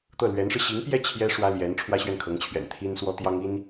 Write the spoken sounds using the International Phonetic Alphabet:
t̪ ɤ˥˩ l ɥ ɛ˧˥ n ʂ ɻ̩˧ ɕ i˧˥ ŋ p j ɛ˥˩ t͡ɕʰ j ɛ˥ ʂ w ä˥ l j ɛ˧˥ n ʈ͡ʂʰ w ä˥ ɕ ɥ ɛ˥˩ n kʰ ɤ˧˥ ŋ t͡ɕʰ ɥ ɛ̰˨˩ n t̪ʰ i˥ n s w ɔ˥ t̪ j ɑ˥ ŋ i˥ n

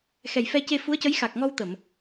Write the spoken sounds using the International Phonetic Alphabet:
x ɛ˨˩ j f ɛ˧ c e˧ f u˧˥ ə̯ c ə˧˥ j x a˨˩ k̚ ŋ ɔ˧ w t̪ ə˨˩˨ m

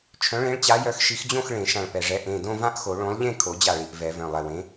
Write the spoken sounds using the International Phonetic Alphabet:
t͡ʃʰ œ̃˨˥ ɭ ẽ˨˥ ɭ t͡ɕ a˨˥ j œ˨˥ x ʃ i˨˥ x d͡ʑ õ˥˧ x ɭ ẽ˨˩˦ ʃ ã˧˩ ɭ p ɛ˧˩ ʐ ɛ˨˥ ʔ ẽ˩˧˩ d õ˥˧ v ã˥˧ ʔ x o˨˩˦ ɭ õ˨˥ lˠ ʎ ẽ˥˧ kʰ o˨˩˦ d͡ʑ a˧˩ ɭ i˧˩ ʔ v ɛ˨˩˦ v œ̃˩˧˩ lˠ ɛ˧˩ w ẽ˨˥

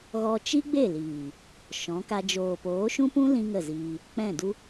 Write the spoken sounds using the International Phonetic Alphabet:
ɣ ɔ˧ t͡ʃ i˦ ɡ͡b e˦˨ l iː˨ | ʃ ɔ̃˨˦ k a˧ d͡ʒ oː˨ p oː˨˦ ʃ ũ˦ p ũ˦ l ĩ˧ ŋ ə˦˨ z iː˧ | k͡p ɛ̃˦˨ d u˦

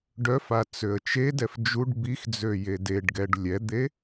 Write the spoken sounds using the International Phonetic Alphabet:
ɖ œ f a t͡s ø ə̯ t͡ʃ e d ɛ f d͡ʒ u ɖ b i x d͡z ø j e d e ɖ ɡ ɛ ɖ lʲ ɛ d̪ e

